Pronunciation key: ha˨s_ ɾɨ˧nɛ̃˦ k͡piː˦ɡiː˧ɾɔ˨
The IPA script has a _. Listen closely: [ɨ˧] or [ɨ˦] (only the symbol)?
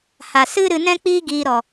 ɨ˦